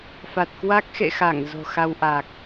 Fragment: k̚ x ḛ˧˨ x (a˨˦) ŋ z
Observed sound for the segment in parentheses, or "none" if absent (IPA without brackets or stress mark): a˧˩